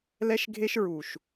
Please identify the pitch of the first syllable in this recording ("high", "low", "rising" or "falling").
high